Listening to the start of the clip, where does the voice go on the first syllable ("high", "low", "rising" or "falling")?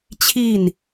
falling